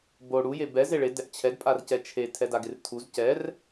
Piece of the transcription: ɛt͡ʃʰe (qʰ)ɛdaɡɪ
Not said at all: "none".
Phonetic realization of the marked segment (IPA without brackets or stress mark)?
tʰ